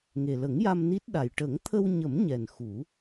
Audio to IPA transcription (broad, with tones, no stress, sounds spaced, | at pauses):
ŋ e˨˩ l ə˨˩˦ ŋ j a˧ m n i˦˥ t̚ ɗ a˨˩ j ʈ ə˨˩˦ ŋ t̪ʰ ə˧ w ɲ ə˨˩˦ m ɲ ɛ˨˩ n x u˨˩˦